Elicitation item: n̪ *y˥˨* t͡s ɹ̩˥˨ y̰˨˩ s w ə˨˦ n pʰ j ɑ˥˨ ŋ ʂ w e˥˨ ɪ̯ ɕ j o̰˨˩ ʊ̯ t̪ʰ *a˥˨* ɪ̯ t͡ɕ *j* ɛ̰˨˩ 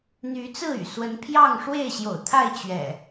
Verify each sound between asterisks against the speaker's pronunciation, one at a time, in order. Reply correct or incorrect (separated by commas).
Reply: incorrect, correct, incorrect